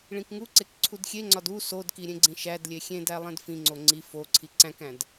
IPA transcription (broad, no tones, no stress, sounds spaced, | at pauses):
ɭ ĩ k ŋ u ǀ e k ǀʰ u d xʲ e ŋ͡ǀ ɒ d u s o d k i ɾʲ ẽ ɡ͡ǀ ĩ ʃ æ d lʲ e xʲ ẽ d æ lˠ ẽ d f ĩ ŋ͡ǀ o ŋ͡ǀ i f o ǀʰ i ǀ æ̃ k æ̃ d